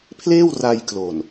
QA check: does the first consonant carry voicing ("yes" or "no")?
no